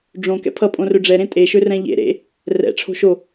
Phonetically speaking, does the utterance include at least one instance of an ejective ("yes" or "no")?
yes